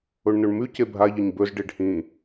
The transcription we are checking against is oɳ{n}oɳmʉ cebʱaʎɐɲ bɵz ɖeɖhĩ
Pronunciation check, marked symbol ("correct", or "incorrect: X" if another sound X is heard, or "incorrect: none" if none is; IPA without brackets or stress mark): correct